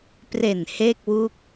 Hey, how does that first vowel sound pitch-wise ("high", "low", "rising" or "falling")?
low